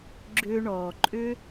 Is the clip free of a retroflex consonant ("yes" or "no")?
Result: no